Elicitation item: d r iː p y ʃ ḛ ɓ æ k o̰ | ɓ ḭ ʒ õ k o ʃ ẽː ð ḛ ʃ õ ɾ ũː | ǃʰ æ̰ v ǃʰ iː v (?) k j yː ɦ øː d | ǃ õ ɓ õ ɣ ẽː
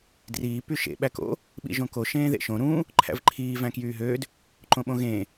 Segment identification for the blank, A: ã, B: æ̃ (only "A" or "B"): B